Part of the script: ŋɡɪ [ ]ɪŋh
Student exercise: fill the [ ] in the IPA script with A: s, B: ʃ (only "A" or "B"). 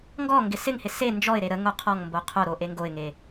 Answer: A